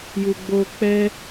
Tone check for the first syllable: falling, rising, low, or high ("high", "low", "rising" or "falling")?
low